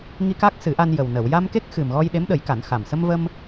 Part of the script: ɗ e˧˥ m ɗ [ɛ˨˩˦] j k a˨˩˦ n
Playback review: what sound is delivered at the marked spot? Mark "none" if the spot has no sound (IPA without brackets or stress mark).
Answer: ə˨˩˦